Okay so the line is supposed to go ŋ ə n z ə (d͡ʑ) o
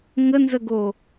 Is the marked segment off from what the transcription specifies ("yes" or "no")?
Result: yes